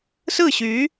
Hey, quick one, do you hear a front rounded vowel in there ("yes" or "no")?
yes